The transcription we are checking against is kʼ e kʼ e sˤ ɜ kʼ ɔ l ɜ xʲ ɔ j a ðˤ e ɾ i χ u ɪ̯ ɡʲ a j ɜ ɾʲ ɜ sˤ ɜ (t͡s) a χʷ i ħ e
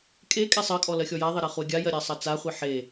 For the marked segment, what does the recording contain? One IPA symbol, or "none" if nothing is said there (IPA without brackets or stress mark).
t͡s